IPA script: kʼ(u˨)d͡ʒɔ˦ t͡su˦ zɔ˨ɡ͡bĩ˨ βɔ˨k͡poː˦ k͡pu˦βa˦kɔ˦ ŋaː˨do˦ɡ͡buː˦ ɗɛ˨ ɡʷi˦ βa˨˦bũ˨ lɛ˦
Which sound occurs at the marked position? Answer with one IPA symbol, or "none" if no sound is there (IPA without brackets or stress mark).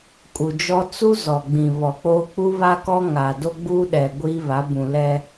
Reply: u˨